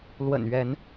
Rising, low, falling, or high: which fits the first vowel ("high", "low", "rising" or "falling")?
low